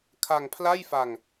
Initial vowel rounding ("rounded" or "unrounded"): unrounded